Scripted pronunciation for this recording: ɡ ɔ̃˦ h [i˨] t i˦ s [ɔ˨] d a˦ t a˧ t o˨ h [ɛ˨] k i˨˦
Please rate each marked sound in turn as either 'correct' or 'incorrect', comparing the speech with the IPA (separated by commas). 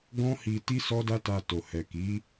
incorrect, incorrect, correct